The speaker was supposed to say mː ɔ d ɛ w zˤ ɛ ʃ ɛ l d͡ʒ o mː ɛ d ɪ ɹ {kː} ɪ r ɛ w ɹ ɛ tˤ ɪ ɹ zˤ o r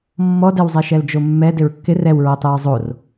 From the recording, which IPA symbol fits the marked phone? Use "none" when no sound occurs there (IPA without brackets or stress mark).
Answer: kː